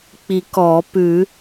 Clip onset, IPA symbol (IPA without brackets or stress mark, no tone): k͡p